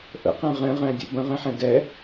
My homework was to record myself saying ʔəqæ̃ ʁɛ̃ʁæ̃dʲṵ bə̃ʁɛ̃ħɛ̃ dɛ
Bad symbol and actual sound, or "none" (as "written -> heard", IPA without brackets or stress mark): ə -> ə̰